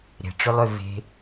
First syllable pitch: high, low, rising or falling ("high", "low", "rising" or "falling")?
low